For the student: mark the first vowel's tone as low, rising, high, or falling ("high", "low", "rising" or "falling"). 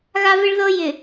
high